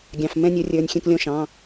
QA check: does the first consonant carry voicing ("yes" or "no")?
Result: yes